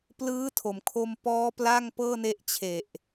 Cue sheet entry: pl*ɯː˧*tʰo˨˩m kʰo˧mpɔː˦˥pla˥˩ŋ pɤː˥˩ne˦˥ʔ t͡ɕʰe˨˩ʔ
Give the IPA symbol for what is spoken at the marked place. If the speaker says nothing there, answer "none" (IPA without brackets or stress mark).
ɯː˦˥